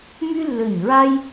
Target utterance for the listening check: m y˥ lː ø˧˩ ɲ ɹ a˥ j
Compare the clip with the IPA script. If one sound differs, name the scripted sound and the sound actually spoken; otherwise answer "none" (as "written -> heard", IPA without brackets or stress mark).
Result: none